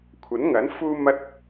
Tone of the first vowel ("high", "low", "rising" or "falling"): rising